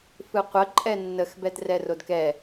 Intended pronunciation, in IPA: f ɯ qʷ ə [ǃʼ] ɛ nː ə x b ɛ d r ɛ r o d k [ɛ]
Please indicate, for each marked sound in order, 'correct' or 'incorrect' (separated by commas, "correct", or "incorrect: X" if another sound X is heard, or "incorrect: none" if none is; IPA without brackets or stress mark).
correct, correct